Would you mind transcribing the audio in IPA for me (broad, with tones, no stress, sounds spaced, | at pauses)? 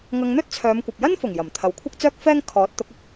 ŋ ɐ˧ ŋ n̪ ɵ˥ t̚ t͡sʰ œː˨˧ m kʷ ɐ˨ p̚ j ɐ˥ n f ʊ˨˩ ŋ j ɐ˨˩ m t̪ʰ ɐ˨˧ w kʷʰ ɐ˥ k̚ t͡s œː˥ k̚ f ɛː˥ ŋ kʰ ɔː˨˥ t̚ t̪ ʊ˨˥ k̚ ɐ˨˥ k̚